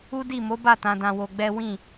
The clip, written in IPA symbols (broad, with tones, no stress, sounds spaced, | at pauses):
u˦ d i˦˨ m o˨˦ b a˦˨ t ã˧ d ã˧ w o˧ ɡ͡b ɛ˦ w ĩ˦˨